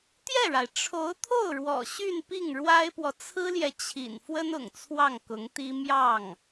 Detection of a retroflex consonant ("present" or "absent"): present